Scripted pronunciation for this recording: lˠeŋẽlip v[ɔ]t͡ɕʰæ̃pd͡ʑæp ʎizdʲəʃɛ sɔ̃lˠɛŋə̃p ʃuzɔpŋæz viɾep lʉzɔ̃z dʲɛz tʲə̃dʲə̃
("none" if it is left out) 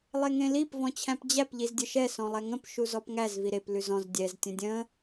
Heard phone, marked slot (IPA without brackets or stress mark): ɔ̃